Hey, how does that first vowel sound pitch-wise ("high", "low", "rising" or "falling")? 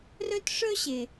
high